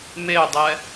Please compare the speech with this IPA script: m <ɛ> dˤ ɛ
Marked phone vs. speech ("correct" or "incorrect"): incorrect